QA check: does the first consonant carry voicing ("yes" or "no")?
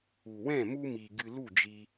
yes